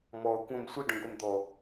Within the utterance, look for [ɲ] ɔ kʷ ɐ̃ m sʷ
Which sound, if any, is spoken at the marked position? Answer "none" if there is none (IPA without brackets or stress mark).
m